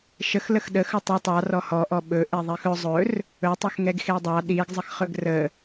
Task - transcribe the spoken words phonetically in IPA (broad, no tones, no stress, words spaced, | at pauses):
ʃəxləx ɗəxɵ tˤə tˤɑ rɔhɔʔɔ ɓɵ ʔeðˤixɵ zˤɵr | ɵtˤɵxŋɛɡ xedˤɑ ɗiɡzˤəxχɵɡ rə